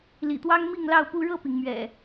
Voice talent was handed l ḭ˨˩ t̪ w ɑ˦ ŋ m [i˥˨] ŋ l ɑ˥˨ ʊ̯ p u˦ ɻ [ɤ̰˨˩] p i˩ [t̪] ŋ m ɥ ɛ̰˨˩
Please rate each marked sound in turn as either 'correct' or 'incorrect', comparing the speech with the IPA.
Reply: correct, incorrect: ɤ˥˨, incorrect: none

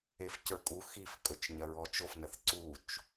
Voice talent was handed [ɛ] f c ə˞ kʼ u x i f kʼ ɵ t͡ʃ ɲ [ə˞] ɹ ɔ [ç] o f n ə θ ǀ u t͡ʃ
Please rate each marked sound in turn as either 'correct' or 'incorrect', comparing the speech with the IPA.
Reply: incorrect: e, incorrect: ɐ, incorrect: t͡ʃ

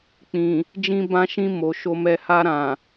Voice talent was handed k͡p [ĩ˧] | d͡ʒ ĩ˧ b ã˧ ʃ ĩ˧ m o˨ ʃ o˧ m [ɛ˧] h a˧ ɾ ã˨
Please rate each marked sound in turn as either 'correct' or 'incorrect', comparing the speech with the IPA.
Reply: incorrect: ĩ˨, correct

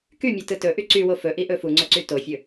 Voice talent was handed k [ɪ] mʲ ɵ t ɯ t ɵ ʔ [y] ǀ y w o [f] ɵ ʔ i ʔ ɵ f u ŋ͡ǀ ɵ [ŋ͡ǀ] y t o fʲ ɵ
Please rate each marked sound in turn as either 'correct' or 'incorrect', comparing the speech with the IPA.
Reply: incorrect: y, correct, correct, incorrect: ǀ

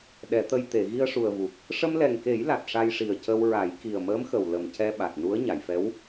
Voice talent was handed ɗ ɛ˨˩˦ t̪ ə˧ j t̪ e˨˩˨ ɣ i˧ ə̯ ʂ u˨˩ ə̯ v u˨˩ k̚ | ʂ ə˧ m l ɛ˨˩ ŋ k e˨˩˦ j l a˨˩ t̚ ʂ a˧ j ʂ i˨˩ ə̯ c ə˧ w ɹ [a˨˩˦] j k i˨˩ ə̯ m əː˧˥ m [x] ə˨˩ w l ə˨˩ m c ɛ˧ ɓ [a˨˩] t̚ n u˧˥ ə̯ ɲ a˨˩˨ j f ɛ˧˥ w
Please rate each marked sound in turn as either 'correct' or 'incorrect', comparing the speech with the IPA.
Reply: correct, correct, correct

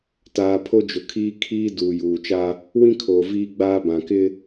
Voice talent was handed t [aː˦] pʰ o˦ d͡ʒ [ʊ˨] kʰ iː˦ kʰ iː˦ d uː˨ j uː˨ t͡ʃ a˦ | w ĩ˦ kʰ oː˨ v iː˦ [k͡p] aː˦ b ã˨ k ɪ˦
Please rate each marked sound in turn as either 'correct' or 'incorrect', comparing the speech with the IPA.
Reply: incorrect: aː˨, correct, incorrect: ɡ͡b

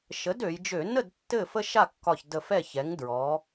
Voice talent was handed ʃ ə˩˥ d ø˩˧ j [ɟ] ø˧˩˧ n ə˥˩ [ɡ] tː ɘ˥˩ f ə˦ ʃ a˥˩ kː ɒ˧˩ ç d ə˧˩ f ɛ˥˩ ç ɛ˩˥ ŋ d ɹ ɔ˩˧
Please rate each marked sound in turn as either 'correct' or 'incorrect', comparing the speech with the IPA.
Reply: incorrect: d͡ʒ, incorrect: d

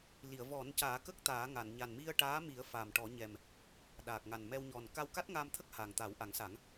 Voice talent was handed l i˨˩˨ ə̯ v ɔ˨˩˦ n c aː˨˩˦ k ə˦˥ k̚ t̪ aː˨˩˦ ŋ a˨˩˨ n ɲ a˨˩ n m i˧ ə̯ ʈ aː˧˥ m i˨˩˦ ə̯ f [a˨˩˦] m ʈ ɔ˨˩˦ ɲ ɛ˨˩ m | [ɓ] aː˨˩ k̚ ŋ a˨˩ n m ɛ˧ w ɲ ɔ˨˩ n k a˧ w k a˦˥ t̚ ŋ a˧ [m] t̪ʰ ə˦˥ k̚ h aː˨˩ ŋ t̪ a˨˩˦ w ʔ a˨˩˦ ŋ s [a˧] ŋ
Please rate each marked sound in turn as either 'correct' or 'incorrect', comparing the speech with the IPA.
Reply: incorrect: a˨˩, incorrect: ɗ, correct, incorrect: a˨˩˦

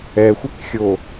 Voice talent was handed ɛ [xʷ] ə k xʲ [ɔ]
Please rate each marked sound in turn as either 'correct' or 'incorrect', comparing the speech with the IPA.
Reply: correct, incorrect: o

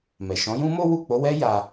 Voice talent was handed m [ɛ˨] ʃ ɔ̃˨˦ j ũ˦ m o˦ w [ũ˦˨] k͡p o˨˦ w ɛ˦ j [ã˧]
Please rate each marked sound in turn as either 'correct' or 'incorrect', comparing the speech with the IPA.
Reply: correct, incorrect: u˦˨, incorrect: a˧

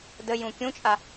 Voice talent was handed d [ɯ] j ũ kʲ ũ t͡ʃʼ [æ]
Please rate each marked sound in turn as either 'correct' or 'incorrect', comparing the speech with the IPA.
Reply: incorrect: ə, incorrect: a

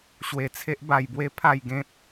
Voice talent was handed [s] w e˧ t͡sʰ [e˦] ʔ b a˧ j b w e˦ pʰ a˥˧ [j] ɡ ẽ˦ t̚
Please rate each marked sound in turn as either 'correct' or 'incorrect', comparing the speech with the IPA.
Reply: incorrect: ɕ, correct, correct

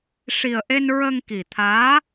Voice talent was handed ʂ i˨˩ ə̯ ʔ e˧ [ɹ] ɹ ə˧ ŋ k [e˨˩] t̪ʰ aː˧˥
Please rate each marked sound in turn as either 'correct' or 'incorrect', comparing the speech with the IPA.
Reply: incorrect: n, incorrect: i˨˩

